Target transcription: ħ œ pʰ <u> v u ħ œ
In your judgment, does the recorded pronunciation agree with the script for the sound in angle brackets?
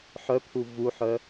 yes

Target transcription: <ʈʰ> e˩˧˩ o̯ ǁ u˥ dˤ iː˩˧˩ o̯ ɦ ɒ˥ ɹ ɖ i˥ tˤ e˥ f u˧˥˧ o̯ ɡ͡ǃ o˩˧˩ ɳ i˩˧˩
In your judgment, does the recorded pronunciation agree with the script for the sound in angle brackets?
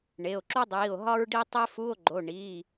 no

